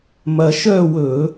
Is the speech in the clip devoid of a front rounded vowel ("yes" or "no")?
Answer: no